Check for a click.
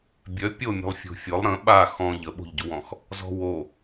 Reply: absent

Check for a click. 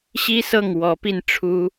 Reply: absent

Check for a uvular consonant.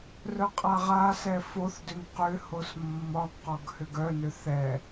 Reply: present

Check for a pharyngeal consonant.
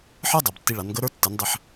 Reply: present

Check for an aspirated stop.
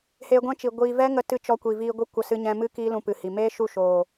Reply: absent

